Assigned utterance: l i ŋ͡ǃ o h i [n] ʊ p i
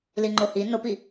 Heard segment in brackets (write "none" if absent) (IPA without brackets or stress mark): n